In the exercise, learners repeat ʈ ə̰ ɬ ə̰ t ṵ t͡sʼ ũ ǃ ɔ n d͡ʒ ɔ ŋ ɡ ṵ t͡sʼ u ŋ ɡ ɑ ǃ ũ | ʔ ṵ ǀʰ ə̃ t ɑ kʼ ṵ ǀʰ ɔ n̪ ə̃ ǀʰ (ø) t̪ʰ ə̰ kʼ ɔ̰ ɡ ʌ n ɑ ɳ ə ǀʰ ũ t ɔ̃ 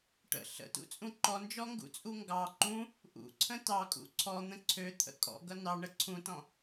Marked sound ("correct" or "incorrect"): correct